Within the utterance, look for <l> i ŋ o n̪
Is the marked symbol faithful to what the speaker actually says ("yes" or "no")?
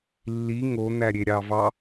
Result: no